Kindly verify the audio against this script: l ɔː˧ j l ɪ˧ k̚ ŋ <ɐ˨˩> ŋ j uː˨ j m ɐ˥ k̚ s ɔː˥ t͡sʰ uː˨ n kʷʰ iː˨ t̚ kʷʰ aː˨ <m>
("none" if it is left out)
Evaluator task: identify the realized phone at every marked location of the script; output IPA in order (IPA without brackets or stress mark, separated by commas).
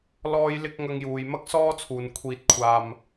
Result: ɐ˧, m